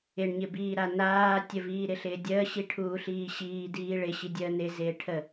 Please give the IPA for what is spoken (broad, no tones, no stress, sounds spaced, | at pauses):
ɪ ɳ ɲ ɪ b iː ɾ a n̪ aː tʲ ə v iː ɾ ɪ ɬ ɪː dʲ əː ɕ i ʈʰ uː ɬ iː ɕ iː d iː ɭ ɪ ɕ i dʲ əː n̪ ɪ z ɪː ʈʰ ə